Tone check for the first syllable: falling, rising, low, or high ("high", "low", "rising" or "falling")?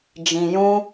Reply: low